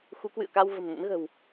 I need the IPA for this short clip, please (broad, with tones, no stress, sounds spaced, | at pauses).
x u˨˦ k w ɨ̰˧˨ ə̯ k a˧ w v ə̤˨˩ m n ə̰˧˥ n ɣ ə̤˨˩ w